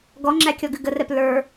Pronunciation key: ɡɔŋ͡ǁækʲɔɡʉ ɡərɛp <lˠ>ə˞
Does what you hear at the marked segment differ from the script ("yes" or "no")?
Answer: yes